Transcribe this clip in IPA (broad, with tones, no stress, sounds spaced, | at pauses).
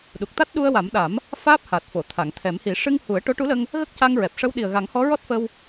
ɗ u˨˩ k̚ t̪ a˦˥ t̚ ɗ u˧ ə̯ w a˨˩˦ m ɗ a˨˩˦ m | f aː˦˥ p̚ h a˨˩ t̚ f o˨˩˨ t̪ʰ a˨˩˨ ŋ t̪ʰ ɛ˨˩˦ m h i˨˩˦ ʂ ɨ˧ ŋ h u˨˩˦ ə̯ ʈ o˧˥ ʈ u˧˥ l ə˧ ŋ | ɣ ə˦˥ k̚ c a˧ ŋ ɹ ɛ˨˩ p̚ ʂ ə˧˥ w ɗ i˨˩ ə̯ ɣ a˨˩˦ ŋ h ɔ˧˥ ɹ ɔ˦˥ t̚ f ə˧ w